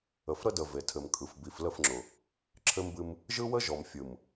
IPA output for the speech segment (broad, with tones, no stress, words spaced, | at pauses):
ə˨fɾə˦də˨ ve˨tʰɘ˨mkʼɯ˨f bi˨flə˦˨fŋ͡ǁʊ˨ | ǁʰɘ˦mbɨ˦m | ʒɯ˦wə˦ ʒɔ˨mfʲɯ˨m